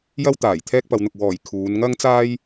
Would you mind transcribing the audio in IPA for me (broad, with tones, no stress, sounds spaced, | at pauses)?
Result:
j ɐ˥ w t̪ aː˨˩ j t̪ʰ ɛː˥ k̚ p ɐ˨˧ w n̪ ʊ˨ k̚ w ɔː˨˩ j kʰ uː˨˧ n ŋ ɐ˥ ŋ t͡s aː˥ j